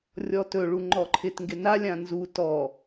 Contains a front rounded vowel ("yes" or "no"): no